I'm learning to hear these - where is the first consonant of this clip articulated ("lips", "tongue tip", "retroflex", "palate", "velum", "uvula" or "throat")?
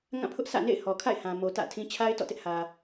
velum